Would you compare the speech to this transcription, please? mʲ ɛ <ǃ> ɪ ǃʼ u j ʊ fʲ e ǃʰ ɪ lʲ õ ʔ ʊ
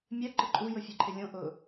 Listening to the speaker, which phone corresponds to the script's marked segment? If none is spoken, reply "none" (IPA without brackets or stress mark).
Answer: ǃ